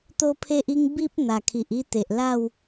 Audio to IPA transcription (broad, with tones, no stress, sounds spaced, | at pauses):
t̪ o˦ pʰ e˦ ʔ i˦ ŋ b i˦ p̚ n̪ a˨˩ kʰ i˨ ʔ i˥˧ t̪ e˨ ʔ l a˥˧ w